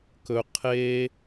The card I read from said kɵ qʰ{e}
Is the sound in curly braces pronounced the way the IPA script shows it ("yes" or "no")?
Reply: yes